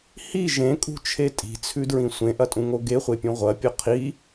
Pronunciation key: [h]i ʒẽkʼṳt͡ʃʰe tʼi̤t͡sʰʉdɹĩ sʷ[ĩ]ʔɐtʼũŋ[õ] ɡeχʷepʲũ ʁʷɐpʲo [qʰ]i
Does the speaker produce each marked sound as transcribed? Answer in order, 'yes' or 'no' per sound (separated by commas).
yes, no, no, yes